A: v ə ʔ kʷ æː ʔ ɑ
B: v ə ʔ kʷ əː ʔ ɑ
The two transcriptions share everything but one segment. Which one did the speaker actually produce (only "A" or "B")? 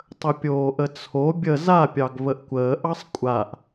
B